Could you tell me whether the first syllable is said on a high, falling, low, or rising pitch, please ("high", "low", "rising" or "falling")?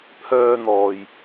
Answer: high